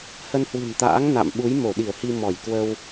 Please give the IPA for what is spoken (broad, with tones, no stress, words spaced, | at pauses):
hə˧nhwɨ̤˨˩nt̪a̰ː˧˥ŋ na̰˧˨mɓu˨˦j mo˧˩ɗi˧˩ə̯hi˧ mɔ˧˩jkwə˧w